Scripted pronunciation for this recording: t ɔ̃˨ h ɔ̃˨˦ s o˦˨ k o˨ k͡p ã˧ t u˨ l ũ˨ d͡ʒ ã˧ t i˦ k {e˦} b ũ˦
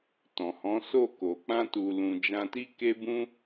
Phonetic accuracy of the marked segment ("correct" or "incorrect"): correct